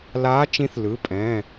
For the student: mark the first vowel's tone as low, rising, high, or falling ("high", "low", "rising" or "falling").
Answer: rising